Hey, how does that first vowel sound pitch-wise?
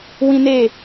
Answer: high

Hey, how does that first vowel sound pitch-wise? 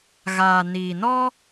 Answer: low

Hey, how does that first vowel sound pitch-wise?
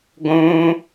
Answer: high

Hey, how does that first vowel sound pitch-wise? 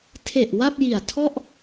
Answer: low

